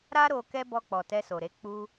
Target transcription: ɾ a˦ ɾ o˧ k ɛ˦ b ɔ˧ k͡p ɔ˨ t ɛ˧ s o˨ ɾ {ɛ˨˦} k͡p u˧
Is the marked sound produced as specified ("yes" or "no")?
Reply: no